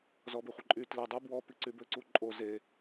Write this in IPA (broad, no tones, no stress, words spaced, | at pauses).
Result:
zɔbeχʷɪǃʼy tle dˤy bwɔ piǀybøǀu ǃʼo ze